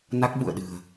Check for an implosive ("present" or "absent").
present